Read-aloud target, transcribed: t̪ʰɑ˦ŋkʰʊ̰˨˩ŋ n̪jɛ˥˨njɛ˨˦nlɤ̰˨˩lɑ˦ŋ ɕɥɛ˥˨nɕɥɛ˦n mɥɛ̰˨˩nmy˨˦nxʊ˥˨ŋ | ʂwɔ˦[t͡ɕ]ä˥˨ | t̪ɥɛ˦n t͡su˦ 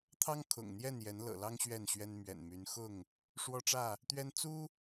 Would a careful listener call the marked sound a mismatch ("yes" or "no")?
yes